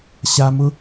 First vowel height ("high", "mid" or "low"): low